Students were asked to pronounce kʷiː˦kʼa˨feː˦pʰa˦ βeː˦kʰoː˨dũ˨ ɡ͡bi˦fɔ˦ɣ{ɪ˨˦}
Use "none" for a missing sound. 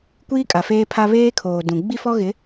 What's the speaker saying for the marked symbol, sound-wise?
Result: ɪ˨˦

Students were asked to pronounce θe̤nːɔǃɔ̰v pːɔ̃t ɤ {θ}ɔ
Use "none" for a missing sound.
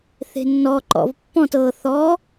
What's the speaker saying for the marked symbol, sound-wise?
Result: θ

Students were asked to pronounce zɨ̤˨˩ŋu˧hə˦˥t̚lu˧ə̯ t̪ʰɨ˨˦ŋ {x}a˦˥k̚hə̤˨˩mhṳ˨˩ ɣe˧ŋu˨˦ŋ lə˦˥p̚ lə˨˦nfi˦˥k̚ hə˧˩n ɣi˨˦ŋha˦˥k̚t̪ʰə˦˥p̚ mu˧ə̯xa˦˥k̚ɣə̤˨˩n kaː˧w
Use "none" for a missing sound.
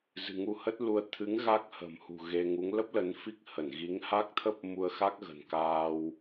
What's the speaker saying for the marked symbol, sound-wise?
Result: ɣ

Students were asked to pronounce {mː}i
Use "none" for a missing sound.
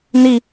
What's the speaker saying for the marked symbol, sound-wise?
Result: n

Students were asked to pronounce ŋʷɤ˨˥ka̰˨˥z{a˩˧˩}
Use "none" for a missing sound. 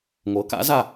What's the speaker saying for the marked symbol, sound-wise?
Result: a˩˧˩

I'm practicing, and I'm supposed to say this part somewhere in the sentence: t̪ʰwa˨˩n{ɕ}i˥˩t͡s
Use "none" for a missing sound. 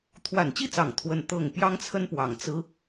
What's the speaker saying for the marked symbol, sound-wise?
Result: t͡ɕ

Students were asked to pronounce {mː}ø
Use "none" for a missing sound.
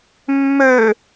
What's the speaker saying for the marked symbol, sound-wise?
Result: mː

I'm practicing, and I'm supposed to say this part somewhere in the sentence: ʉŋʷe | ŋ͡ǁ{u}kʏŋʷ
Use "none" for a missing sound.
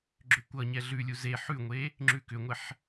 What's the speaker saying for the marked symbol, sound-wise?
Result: ʉ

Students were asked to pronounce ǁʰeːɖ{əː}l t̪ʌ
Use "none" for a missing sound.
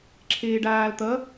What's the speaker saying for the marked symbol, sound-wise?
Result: aː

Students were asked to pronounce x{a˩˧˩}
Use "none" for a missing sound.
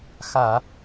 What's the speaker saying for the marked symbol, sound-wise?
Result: a˧˩˧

